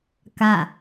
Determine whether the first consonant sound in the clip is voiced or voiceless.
voiceless